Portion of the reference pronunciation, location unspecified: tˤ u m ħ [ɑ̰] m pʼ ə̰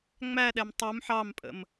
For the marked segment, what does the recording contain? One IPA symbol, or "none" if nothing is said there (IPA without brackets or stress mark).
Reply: ɑ